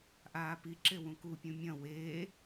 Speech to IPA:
ʔ aː p i ǁ e w ũ k u pʲ ũ mʲ ɐ̃ w eː

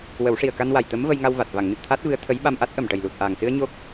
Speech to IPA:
w ə˨˩˦ w ʂ i˨˩ ə̯ k a˧ n w a˨˩ j t̪ ə˧˥ m v ə˧ j ŋ a˧ w v a˨˩ t̚ v a˨˩˨ ŋ n ɨ˨˩ t̚ t̪ʰ a˦˥ t̚ v ɨ˧˥ ə̯ t̪ʰ ə˧˥ j ɓ a˧ m ʔ a˦˥ t̚ ʔ ə˨˩ m ʈ ə˨˩ j l u˨˩ t̚ ʔ aː˨˩ ŋ s ɨ˧ ə̯ ɲ o˦˥ k̚

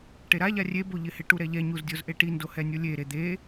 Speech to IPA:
ʈ e ɾ a ʎ a rʲ e b o ʎ ɪ h ɪ ʈ u ɾ ɛ ʎ ɛ ɲ u z dʲ o z ʔ e ʈ i n d o h ɛ nʲ o lʲ e ɾ e d̪ e

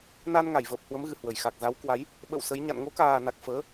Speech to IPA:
n a˧ n ŋ a˧˩ j v əː˨˩ p̚ h w ə˨˦ m ɣ ɨ˨˩ h w ə˧˩ j x a˨˩ k̚ z a˨˦ w k w a˨˦ j | ɓ ə̰˧˨ w s ə˨˦ j ɲ a̰˧˨ n ŋ o˨˦ k aː˨˩ n a˨˩ k̚ f əː˨˦

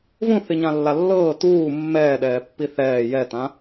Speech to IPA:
v ũ θ i ɲ ã lː a lː ɤː t uː mː ɛː ɗ ɛː pː i θ ɛː j ɛ t ã

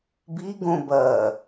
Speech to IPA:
b i ɡ õ b ɐ

